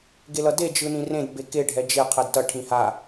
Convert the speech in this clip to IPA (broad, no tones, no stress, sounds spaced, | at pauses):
ɡ e l ʌ d e d͡ʒ ɯ n ĩ r ẽ d b e k e ɖʱ ɛ d͡ʒ e qʰ ɛ d t ʌ ʈʰ ĩ h a